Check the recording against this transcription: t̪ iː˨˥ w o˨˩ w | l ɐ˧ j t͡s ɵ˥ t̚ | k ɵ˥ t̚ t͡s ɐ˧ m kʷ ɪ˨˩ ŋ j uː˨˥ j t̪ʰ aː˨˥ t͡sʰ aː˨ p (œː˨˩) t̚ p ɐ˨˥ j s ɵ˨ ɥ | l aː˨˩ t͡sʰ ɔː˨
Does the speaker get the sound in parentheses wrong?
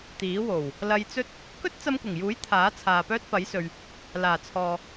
yes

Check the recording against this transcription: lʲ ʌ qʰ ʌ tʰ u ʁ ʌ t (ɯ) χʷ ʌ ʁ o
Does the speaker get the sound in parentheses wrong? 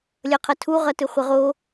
no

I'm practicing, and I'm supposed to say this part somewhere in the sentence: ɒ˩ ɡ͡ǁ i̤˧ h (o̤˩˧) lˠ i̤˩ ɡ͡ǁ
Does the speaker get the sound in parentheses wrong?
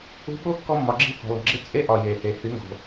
yes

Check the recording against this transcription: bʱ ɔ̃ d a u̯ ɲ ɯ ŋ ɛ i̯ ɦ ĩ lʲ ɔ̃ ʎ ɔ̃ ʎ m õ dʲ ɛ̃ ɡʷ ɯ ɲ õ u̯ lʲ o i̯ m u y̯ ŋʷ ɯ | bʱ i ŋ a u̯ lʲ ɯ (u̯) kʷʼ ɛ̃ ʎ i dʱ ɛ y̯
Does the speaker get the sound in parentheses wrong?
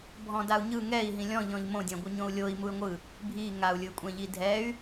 yes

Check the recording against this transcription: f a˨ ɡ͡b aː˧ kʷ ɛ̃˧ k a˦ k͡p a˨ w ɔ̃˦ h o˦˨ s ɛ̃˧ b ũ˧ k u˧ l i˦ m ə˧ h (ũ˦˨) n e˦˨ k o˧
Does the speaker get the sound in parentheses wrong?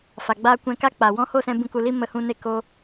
yes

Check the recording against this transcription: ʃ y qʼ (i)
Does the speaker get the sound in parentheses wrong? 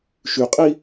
no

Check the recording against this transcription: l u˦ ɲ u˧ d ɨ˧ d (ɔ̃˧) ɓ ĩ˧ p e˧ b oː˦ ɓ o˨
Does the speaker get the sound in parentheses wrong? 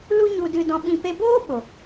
no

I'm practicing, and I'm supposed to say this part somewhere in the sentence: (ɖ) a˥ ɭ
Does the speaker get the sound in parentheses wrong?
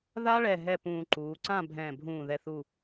yes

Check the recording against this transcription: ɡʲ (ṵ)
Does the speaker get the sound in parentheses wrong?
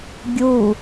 yes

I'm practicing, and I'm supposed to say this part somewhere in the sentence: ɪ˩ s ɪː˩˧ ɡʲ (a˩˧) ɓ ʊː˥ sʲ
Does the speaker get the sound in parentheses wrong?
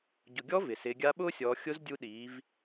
yes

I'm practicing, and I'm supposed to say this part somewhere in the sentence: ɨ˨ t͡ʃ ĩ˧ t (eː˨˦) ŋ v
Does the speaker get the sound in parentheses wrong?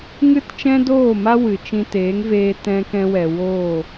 no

